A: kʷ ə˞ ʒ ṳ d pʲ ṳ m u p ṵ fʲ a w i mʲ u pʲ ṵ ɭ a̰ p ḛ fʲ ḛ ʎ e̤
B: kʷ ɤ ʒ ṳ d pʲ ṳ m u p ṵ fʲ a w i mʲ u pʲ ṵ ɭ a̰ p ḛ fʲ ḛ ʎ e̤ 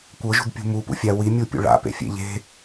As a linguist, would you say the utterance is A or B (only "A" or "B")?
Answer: B